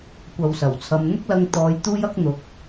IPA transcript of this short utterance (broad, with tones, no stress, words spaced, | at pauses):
kʷɐ˨wsɐ˨˩wt͡sʰɐ˨˧m n̪ʊ˥k̚lɐ˧ŋt̪ɔː˨˧j t̪uː˥jɐ˥k̚n̪ʊ˨˥k̚